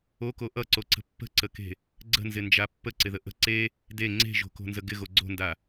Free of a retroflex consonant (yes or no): yes